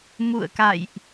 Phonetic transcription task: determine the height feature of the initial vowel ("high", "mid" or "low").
high